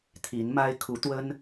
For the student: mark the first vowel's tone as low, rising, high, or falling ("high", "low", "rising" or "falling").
rising